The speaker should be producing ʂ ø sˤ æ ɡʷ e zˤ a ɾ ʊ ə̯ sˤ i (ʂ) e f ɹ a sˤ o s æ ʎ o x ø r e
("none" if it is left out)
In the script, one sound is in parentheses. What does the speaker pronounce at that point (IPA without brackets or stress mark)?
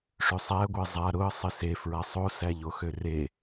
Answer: s